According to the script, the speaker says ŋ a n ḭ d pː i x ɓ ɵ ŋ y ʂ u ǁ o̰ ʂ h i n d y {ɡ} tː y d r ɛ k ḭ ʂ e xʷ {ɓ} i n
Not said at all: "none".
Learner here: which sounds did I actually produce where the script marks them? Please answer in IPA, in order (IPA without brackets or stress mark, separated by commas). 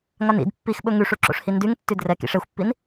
ŋ, pː